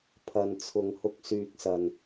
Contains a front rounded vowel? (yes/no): yes